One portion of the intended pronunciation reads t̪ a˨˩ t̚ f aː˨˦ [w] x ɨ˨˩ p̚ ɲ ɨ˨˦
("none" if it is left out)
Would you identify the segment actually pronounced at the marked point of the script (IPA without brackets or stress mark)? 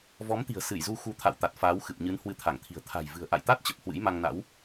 w